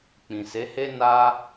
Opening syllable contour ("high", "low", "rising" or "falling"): low